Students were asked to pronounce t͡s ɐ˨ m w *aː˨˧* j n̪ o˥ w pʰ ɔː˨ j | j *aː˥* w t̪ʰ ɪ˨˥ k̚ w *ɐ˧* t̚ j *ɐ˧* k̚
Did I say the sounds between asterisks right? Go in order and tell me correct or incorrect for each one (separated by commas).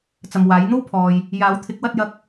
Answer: incorrect, incorrect, correct, correct